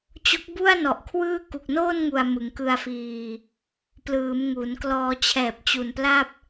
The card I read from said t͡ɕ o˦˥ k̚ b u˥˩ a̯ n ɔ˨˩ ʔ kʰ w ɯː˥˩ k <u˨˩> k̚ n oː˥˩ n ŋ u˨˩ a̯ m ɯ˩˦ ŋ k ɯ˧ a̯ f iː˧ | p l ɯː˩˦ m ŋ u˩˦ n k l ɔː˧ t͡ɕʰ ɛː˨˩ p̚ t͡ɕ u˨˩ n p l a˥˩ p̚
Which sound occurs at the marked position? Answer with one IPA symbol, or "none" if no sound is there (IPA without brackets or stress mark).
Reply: u˨˩